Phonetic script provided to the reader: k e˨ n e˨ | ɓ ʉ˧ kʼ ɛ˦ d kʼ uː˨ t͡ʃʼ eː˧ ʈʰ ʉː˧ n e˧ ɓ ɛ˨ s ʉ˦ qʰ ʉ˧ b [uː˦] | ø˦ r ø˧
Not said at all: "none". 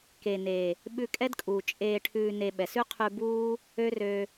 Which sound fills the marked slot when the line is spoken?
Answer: uː˦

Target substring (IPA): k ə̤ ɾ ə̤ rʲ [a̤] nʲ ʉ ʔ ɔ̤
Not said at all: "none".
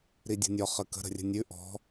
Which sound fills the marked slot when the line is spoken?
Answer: ə̤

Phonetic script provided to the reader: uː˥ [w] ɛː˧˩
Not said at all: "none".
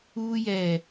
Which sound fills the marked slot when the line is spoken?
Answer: j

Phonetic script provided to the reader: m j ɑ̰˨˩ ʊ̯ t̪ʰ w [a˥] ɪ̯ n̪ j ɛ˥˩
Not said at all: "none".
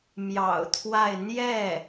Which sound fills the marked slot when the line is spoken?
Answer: a˥˧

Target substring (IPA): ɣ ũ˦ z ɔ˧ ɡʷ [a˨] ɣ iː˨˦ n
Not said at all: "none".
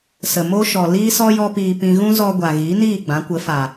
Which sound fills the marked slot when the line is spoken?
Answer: a˨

